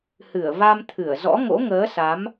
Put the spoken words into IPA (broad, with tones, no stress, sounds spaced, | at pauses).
h ɨ˧˩ ə̯ v a˧ m t̪ʰ ɨ˧˩ ə̯ z ɔ̰˧˥ ŋ o̰˧˥ ŋ əː˨˦ s a˨˦ m